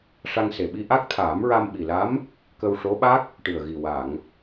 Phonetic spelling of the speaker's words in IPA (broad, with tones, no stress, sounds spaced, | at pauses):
ʂ a˧ ŋ s e˨˩ ɓ i˧ ʔ a˦˥ k̚ t̪ʰ aː˨˩˦ m ɹ a˧ m ɓ i˨˩ l a˧˥ m | k ə˧ w ʂ o˧˥ ɓ a˦˥ k̚ | ʈ ɨ˨˩ ə̯ ɣ i˨˩ w a˨˩˨ ŋ